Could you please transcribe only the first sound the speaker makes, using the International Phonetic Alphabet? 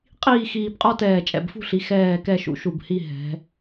qʼ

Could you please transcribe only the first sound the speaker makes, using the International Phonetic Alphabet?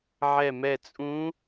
ʕ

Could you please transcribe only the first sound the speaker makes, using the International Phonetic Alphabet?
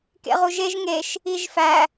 k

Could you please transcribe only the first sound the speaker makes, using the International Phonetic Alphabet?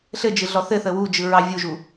ɬ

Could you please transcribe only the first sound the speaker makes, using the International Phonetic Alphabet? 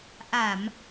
ʔ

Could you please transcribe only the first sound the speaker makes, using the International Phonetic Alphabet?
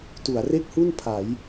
t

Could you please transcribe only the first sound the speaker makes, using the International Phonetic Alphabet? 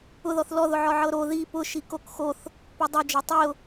ʊ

